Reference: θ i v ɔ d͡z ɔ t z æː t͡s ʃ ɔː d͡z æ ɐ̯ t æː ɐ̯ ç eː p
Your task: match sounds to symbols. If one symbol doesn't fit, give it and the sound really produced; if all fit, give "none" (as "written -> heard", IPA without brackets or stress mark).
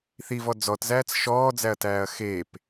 ç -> x